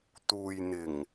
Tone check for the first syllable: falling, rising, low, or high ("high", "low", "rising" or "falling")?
low